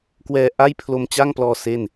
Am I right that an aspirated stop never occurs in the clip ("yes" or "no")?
no